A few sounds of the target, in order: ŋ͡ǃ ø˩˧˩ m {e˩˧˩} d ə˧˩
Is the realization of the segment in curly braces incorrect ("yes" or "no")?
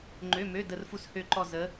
yes